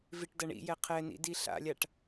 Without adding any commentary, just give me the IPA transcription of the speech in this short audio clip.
viʈdɐɳḭjɛ qʰɛnḭ diɬa̰lʲaʈ

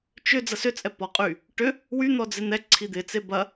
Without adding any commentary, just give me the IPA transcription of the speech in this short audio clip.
t͡ʃʏ d͡zɐsʏt͡sʼɛ pɔqʼy | ʈʏ | wyn̪ɔ d͡zɪn̪ɛǀʰi d̪ɪt͡se bɐ

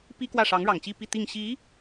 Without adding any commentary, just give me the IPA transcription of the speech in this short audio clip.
pi˥ kwä˥˩ʂɑ˧˥ŋɻɑ˨˩ŋt͡ɕi˥˧ pi˥˧t̪i˥˩ŋ ɕi˧˥

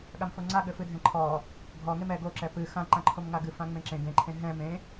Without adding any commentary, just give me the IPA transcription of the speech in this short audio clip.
ɠamfoŋ͡ǀa ɠɘfɨdʱɛ̃ǃʰɔ | ɡʱɔŋem ɛ ɡoǁɛ pɨ xã ǃãǃʰomŋaɡɨ fãŋ͡mẽǁẽ ɡẽǃʰẽ ɦɛ̃ mẽ

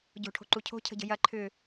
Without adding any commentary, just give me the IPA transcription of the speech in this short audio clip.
ɟo̤ʈʰo̤ǃu cʰo̤cʰə̤ɟə̤ jɐ ǃʰʏ

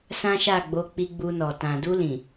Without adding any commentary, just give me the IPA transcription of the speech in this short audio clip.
sã˦ʃa˦˨ɡ͡bo˧ k͡pi˧ɡ͡bu˧nɔ˨ tã˨du˧lĩ˨

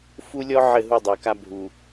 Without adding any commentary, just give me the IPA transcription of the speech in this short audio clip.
fu˦lʲɔ˦ ʕɘ˦˨ɦu˦˨dˤə˞˨ka˦ bʱu˨

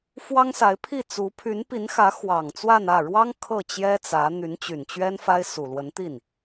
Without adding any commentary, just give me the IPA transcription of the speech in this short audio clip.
fwɑ˥ŋsa˧˥ɪ̯ pʰi˥˩t͡su˧˥ pʰy˧˥npi˧˥nxä˧˥ xwɑ˨˩ŋt͡swa˥˧nä˥˩ ɻwɑ˥ŋ kʰɤ˥˩t͡ɕjɛ˥t͡sä˧˥ n̪y˧˥nt͡ɕy˨˩nt͡ɕɥɛ˥nfa˥ɪ̯ su˨˩lwə˧˥nt̪i˥˩n

